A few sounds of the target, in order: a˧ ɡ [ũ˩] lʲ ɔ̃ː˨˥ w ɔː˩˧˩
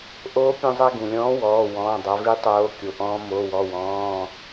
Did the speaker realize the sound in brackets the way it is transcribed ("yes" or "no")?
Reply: yes